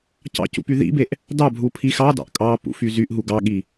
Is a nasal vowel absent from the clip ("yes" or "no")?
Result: yes